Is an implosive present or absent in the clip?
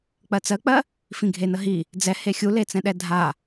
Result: present